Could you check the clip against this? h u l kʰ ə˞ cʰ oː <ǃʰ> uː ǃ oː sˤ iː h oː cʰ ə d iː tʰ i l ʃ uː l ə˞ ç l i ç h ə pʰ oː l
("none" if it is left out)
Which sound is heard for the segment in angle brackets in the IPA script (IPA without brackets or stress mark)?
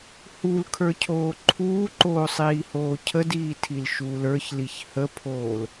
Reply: ǃʰ